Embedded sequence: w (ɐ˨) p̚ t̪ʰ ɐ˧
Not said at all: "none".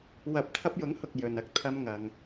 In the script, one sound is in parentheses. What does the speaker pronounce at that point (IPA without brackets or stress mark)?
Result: ɐ˨˥